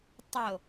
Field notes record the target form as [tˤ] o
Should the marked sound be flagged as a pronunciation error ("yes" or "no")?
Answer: no